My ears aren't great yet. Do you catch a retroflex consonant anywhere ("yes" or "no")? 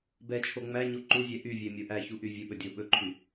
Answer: no